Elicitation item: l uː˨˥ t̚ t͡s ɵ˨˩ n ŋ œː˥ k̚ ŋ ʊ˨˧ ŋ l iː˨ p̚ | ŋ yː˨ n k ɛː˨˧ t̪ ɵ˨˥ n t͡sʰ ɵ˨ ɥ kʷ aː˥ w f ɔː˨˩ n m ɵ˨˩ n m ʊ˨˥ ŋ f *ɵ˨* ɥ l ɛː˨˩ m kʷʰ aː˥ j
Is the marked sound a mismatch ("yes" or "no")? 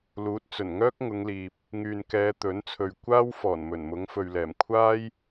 no